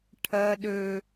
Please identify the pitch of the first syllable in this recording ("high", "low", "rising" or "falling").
high